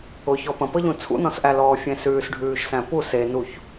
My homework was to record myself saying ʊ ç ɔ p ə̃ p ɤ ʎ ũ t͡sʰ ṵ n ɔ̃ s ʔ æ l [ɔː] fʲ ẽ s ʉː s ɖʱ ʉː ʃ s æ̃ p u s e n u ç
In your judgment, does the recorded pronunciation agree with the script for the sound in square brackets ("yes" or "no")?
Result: yes